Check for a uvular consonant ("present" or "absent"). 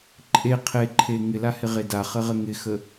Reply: present